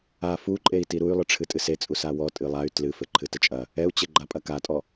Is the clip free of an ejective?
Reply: no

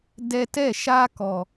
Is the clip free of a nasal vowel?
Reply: yes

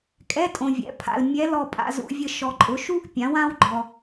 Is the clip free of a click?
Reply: no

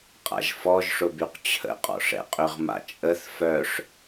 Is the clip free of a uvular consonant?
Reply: no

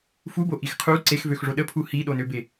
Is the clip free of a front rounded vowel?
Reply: no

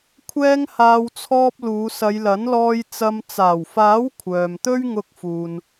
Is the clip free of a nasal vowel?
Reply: yes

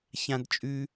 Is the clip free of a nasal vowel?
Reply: no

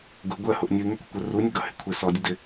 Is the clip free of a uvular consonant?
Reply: yes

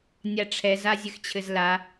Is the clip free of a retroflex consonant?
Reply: no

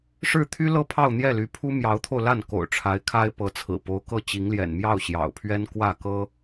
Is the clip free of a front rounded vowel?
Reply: no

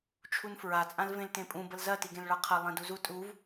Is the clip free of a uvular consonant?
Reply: no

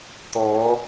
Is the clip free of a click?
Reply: yes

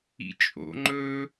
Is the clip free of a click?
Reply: no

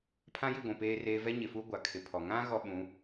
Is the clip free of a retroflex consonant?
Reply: yes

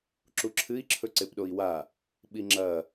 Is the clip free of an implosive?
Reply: no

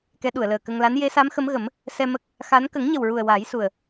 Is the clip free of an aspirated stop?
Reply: yes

